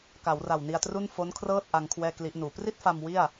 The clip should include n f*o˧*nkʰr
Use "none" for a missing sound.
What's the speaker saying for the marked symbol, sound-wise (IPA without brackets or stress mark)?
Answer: o˦˥